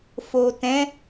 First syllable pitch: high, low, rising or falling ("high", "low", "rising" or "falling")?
low